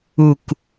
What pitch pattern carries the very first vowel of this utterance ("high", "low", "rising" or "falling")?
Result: falling